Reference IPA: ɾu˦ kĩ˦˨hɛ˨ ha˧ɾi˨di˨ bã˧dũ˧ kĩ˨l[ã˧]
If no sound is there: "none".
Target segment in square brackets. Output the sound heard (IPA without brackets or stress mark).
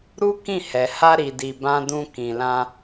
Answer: ã˧